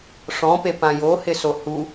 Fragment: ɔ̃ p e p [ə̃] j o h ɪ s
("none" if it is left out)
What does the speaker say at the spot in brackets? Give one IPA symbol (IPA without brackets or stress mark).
ã